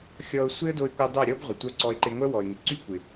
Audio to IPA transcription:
xʲ ɔ˧ ʊ̯ sʷ e˦ ə̯ d o˧ ɪ̯ kʷ œ˧ dˤ œ˦˨ ɾʲ ɔ˦ b ʁʷ ə˨ tʷ œ˦ ǀ ɔ˧ ɪ̯ ǃ e˧ ŋʷ œ˦ w ɔ˨ ɪ̯ ŋ ɪ˨ ǀ y˦ kʷ ɪ˨

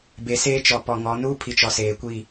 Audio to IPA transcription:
b e˨ s eː˦ t͡ʃ ɔ˨ p ɔ˨ ŋ ɔ˨˦ n uː˦ pʰ i˨ t͡ʃ ɔ˨ s eː˨ kʷ i˦˨

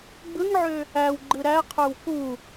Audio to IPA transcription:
ɡ͡b ɯ ŋ ʕ ø | æ w ɡ͡ǃ ɯ ɾ æ qʰ ø w k u

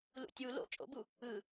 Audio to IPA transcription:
l ṵ tʲ u l o̰ t͡ʃʼ o̰ b u | ɯ

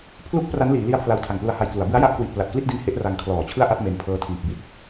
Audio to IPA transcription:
pʰ l u˦˥ k̚ p r a˦˥ n l iː˩˦ l i˦˥ a̯ pʰ l a˧ w tʰ a˨˩ ŋ p l u˧ a̯ h a˧ j k l u˩˦ a̯ b ɯ˦˥ a̯ j a˦˥ ʔ k w i˨˩ ʔ p l a˨˩ t̚ k l i˥˩ t̚ d i˦˥ n h e˦˥ ʔ r a˧ ŋ kʰ l ɔː˨˩ t͡ɕʰ ɯ˥˩ a̯ ʔ a˥˩ t̚ m e˧ n pʰ ɤː˦˥ tʰ iː˨˩ p̚ b i˥˩ t̚

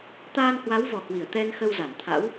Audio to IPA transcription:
t̪ aː˧ n h w a˨˦ w v ɔ˨˩ h w i˧˩ ə̯ t̪ ɛ˧ n x ə˧ w z a˧˩ n t̪ʰ a̰˧˥ w

